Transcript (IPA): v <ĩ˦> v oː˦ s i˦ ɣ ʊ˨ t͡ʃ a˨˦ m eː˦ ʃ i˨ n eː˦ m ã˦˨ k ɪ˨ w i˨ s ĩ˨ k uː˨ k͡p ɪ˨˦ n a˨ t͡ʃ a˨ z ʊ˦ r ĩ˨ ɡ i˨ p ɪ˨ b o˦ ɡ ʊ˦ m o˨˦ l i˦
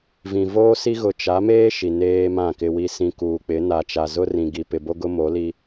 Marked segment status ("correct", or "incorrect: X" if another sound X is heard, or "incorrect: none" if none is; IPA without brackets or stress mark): incorrect: ĩ˨